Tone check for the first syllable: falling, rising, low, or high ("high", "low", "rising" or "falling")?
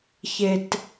low